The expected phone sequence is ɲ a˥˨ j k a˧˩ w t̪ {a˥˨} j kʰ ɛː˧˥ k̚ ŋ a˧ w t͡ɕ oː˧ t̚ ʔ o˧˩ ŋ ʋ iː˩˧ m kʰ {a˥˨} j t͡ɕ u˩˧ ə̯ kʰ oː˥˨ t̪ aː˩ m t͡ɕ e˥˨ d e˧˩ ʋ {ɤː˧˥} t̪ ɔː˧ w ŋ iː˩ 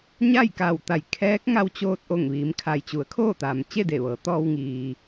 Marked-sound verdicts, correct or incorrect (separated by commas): incorrect, incorrect, incorrect